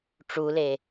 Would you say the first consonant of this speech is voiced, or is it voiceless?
voiceless